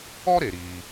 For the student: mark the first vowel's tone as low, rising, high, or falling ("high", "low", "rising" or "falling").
high